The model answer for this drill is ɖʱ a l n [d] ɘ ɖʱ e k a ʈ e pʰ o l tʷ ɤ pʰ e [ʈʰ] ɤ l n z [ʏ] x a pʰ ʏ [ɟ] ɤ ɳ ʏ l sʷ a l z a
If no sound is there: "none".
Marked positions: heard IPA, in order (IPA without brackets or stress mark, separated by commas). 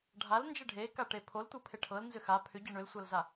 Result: d͡ʒ, ʈʰ, ʏ, ɟ